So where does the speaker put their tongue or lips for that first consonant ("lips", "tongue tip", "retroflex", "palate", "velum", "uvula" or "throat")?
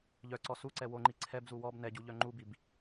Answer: palate